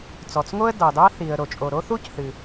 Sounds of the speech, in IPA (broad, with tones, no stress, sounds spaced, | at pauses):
t͡s ɔ˩ t͡s ŋ o˥ ə̯ d ɑ˩ d ɑ˥ θ i˩ ə̯ ɾ o˩ t͡ʃʼ o˩ ɾ o˥ θ u˥ c θ ɨ˩